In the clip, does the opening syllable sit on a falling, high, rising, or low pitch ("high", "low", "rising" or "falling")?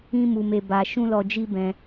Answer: high